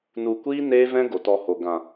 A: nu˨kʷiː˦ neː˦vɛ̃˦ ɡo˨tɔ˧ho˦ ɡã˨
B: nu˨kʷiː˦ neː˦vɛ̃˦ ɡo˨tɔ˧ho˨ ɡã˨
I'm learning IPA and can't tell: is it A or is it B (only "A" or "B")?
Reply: B